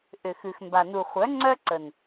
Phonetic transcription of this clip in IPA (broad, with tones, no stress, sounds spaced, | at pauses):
ʔ ʏ˨ x ʉ˨ x m b a˨ n u˨ χʷ œ˨˦ ŋ͡ǀ œ˦ ǀ ə˨ n